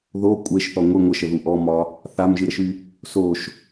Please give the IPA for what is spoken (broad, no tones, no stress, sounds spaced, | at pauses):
ð o kʷʼ e ʃ θ ɔ ŋʷ ɨ ŋʷ ə ʃ ə ð u ʔ ɔ m ɒ | θ a m ʒ ɨ ɾ ə ʃ y | s o ʃ